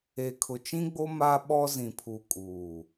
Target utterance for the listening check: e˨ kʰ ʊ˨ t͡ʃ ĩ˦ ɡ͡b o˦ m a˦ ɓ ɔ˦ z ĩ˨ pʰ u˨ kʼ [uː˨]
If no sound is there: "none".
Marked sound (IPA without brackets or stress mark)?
uː˨